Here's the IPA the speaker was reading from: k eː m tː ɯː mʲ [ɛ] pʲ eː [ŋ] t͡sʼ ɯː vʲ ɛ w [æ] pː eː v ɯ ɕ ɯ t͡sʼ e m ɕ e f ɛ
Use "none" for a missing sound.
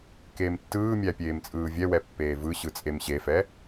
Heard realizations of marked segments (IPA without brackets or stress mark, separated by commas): æ, m, ɛ